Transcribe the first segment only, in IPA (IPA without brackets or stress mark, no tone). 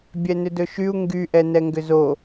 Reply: bʲ